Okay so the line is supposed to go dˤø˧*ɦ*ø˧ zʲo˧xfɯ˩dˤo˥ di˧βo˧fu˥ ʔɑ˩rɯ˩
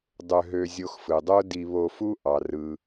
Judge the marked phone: correct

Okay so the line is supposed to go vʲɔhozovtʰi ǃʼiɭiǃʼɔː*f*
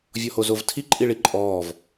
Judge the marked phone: incorrect: v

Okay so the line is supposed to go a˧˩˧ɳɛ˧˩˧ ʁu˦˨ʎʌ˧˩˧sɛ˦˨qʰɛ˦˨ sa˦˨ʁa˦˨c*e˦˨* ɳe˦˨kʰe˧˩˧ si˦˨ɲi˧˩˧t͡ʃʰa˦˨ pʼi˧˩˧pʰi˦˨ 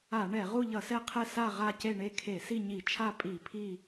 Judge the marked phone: correct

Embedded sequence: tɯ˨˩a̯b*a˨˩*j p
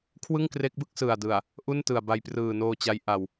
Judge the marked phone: incorrect: a˧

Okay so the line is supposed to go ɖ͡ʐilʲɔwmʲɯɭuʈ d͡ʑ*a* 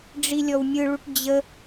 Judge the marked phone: incorrect: ə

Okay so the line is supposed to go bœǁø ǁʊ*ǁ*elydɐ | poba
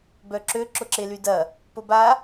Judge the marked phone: correct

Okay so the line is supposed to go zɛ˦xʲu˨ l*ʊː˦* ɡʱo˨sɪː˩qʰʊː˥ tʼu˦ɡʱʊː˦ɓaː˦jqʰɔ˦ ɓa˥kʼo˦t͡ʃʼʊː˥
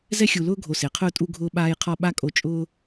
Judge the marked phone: correct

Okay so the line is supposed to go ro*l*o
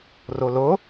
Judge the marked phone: correct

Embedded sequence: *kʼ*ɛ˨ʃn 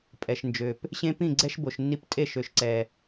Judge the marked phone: incorrect: pʼ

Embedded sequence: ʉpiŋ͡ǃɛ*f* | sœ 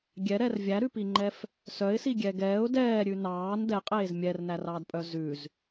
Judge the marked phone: correct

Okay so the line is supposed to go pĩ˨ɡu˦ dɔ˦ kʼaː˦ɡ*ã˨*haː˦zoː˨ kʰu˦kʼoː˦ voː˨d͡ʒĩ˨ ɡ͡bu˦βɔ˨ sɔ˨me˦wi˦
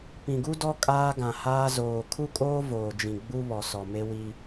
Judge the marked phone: correct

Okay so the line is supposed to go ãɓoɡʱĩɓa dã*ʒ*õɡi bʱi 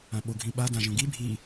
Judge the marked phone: correct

